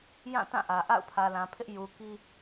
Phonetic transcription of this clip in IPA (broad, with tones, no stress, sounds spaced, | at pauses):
j ã˦˨ t ã˦˨ ʔ ä˨ ʔ a̰˦˨ ʊ̯ pʰ ä˨ l ã˨ pʰ ɪ˦ ʔ j u˨ k i˦